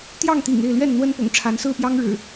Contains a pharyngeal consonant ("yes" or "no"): no